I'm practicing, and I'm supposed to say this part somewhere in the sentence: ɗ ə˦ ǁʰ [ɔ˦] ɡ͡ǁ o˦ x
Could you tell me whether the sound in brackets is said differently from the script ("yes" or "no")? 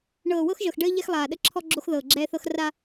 no